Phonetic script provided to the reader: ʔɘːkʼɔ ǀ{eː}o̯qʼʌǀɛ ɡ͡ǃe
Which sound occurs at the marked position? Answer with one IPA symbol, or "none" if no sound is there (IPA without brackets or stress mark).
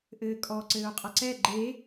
ɘː